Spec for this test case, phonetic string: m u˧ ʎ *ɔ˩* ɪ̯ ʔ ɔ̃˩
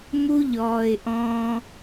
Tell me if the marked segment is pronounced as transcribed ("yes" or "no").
no